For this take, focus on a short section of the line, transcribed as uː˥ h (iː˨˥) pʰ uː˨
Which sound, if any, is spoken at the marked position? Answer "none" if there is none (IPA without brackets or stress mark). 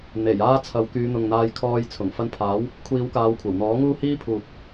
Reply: iː˥